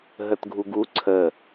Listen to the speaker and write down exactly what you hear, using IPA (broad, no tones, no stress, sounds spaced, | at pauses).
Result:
ɦ ə t ɡʱ u ɡ u ǀʰ ə